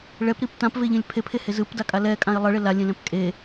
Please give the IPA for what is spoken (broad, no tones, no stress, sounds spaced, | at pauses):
ɭ ɛ p ɾ i p t ã p v e ʎ ẽ lʲ pʰ e pʰ e h e z ɯ p d a kʼ a l ɛ kʼ ã ɪ̯ lˠ ʌ ɭ e l a lʲ ẽ l ɛ̃ p kʼ e